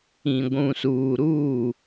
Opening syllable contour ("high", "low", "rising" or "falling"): low